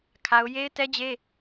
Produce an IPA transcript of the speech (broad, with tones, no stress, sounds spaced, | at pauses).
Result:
kʰ a˦ ʊ̯ j e˦ ɪ̯ t ɛ˦ d͡ʑ e˦